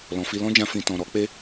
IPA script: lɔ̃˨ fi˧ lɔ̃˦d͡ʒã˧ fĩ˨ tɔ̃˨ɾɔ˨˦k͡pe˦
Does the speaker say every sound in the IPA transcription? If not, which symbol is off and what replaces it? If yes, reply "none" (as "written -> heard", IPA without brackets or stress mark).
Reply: none